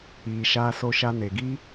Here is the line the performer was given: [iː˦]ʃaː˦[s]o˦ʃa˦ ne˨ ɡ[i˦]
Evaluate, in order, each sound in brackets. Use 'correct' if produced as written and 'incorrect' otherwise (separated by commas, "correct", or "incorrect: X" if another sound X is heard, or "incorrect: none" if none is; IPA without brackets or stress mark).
incorrect: iː˨, correct, correct